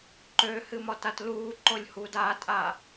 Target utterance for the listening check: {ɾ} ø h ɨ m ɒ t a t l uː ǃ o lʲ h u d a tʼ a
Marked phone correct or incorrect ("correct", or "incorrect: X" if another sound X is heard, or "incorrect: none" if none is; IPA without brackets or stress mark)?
incorrect: ǃ